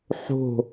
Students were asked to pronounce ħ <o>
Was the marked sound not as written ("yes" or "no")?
yes